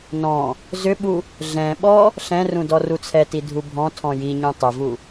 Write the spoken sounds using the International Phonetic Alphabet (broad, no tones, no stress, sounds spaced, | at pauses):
n ɔ̃ | z ʏ ɓ u | ɮ ɛ̃ ɓ ɔ | ɬ ɛ̃ r ũ d ɔ r u t͡sʰ ɛ t i dʱ u bʱ ɔ̃ tʰ ɔ̃ j i ɲ ũ tˤ ʏ v u